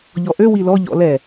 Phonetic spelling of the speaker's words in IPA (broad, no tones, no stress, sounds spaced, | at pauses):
ʎ ɔ ʔ ø w i l ɔ ʎ ɔ̰ l ɛ